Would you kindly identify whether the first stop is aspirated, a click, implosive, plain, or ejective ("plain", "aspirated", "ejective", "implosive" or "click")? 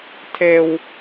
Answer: aspirated